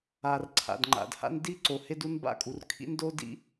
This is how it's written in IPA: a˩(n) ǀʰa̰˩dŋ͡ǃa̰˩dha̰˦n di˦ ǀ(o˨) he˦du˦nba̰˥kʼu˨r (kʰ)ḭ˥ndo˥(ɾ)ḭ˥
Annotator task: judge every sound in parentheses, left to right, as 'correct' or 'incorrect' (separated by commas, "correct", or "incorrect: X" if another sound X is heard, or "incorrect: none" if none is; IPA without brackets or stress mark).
incorrect: r, correct, correct, incorrect: d